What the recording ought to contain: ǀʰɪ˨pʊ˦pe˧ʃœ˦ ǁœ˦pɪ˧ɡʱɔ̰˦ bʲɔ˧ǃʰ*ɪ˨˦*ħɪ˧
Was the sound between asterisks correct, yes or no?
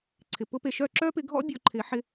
yes